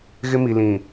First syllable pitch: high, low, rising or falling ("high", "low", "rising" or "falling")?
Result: high